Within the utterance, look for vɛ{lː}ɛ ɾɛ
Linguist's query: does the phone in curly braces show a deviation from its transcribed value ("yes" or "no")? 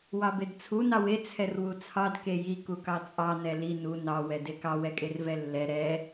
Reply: no